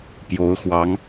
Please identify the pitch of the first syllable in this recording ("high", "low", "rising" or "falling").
rising